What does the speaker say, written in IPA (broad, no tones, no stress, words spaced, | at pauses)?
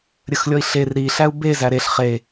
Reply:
ɾʲəxlʲɔi̯ɬer ɾiɬæu̯ bezæ ɾeɬ χe